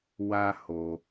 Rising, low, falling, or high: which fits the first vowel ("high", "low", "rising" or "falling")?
high